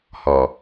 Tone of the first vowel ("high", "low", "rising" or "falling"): low